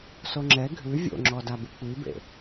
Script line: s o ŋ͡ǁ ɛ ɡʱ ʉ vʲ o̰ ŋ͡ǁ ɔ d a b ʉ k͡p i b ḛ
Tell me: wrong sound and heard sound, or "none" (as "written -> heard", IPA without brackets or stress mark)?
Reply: none